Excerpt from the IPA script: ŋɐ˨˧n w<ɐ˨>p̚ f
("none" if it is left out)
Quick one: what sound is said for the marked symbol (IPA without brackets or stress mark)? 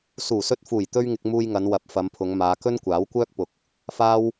ɐ˨